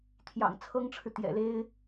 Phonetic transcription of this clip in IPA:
t̪ʰjɑ̰˨˩ŋt͡sʰɤ˥ŋʈ͡ʂʰɻ̩˨ t̪jɛ̰˨˩le˥ɪ̯

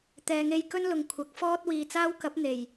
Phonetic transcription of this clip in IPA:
t̪ɛː˨˧ŋe˧jkɵ˥nlʊ˨ŋ kʷʰɐ˨˥k̚fɔː˥t̚ wiː˨t͡saː˥wkɐ˨˥p̚ n̪e˨˩j

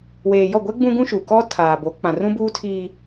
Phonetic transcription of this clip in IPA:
weː˨jɔ˦˨ɡʷɛ˦ ɡ͡bũ˦ɡũ˦ ʃu˨kɔ˦ tʰaː˨bo˨˦ k͡pã˨rũ˦buː˦tʰiː˦

